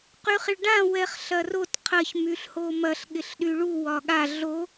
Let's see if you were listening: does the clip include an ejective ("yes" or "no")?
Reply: no